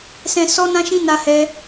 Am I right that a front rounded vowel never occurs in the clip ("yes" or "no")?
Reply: yes